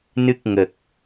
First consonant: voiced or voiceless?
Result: voiced